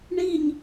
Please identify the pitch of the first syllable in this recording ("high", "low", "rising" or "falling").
falling